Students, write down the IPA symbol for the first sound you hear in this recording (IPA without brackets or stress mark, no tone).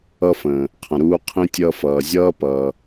ʌ